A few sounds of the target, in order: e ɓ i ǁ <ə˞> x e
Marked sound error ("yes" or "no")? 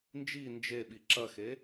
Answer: yes